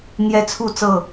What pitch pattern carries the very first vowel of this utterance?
high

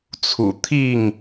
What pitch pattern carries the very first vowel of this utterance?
low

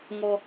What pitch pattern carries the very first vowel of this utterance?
high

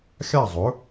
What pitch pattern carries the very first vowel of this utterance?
falling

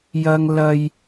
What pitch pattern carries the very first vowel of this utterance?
high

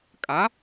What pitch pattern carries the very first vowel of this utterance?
rising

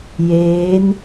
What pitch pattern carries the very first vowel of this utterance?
rising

